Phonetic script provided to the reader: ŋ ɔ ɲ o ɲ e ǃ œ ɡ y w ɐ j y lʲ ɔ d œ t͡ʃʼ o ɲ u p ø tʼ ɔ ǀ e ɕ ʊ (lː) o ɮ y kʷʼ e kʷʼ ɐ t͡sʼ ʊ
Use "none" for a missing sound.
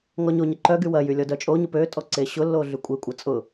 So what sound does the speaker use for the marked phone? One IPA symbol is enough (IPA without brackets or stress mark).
lː